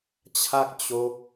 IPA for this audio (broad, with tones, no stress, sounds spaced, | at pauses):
t͡ɕʰ a˥˩ k̚ t͡ɕ o˦˥ k̚